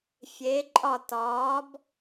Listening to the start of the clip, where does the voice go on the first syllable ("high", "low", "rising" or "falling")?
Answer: rising